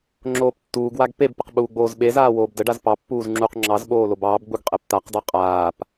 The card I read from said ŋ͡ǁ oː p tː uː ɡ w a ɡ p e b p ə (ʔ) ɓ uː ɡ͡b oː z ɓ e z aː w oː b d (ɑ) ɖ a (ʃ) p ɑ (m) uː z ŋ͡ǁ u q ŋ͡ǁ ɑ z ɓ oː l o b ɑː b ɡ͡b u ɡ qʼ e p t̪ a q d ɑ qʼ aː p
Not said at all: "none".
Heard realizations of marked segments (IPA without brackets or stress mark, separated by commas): q, ə, z, pː